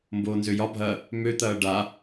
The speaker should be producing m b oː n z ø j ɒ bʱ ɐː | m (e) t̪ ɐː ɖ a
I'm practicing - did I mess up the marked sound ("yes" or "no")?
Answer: yes